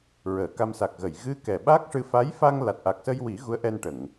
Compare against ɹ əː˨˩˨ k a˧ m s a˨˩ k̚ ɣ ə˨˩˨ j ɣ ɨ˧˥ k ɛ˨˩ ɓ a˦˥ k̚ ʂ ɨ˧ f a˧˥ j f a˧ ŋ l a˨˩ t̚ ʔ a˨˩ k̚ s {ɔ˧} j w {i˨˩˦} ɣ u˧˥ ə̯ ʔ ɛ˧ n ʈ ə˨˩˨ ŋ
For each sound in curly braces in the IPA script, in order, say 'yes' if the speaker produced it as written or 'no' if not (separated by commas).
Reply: no, yes